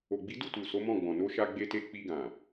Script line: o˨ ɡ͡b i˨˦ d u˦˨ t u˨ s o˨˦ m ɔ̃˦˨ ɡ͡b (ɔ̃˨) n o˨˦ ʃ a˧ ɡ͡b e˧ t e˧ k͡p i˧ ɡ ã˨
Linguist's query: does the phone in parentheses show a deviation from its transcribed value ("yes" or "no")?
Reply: no